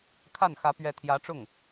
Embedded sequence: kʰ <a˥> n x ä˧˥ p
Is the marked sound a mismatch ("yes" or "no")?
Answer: yes